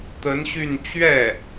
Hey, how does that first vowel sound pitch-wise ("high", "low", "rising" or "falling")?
rising